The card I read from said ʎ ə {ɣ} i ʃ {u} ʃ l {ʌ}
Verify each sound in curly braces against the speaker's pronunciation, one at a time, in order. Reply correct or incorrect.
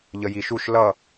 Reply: incorrect: j, correct, correct

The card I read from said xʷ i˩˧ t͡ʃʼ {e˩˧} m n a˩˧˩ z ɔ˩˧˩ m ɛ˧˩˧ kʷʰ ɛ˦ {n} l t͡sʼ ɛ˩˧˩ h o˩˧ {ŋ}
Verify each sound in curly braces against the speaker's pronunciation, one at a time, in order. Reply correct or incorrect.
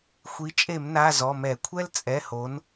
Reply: incorrect: e˧˩˧, incorrect: none, incorrect: n

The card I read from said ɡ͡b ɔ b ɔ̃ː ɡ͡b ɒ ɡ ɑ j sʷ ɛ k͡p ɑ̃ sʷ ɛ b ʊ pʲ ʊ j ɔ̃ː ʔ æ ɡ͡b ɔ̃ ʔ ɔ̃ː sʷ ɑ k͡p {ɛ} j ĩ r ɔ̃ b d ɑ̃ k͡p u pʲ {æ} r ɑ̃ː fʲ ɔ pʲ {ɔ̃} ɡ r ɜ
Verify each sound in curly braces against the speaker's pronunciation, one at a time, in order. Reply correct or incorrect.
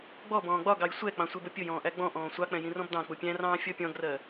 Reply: incorrect: ɛ̃, incorrect: æ̃, correct

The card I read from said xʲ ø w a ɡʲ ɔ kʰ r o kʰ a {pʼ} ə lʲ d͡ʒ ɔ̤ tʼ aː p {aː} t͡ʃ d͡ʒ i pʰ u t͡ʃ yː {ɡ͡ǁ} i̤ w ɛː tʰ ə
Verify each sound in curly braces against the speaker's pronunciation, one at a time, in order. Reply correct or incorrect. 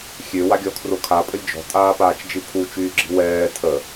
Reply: correct, correct, correct

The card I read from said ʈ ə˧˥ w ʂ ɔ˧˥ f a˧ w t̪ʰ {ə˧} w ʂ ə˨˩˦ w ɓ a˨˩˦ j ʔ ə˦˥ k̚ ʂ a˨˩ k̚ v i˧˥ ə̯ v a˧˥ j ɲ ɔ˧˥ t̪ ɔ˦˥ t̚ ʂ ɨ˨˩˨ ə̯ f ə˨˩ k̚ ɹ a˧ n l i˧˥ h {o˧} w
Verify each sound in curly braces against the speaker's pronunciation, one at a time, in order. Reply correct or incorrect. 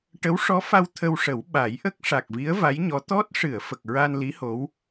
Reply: correct, incorrect: o˧˥

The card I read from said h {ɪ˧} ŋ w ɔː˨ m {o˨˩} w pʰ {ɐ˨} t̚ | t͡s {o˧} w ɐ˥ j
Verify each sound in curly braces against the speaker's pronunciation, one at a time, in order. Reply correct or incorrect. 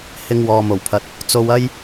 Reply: correct, correct, correct, correct

